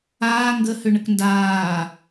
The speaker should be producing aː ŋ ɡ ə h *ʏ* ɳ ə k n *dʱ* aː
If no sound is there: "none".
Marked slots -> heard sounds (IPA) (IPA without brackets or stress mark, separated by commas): ʏ, d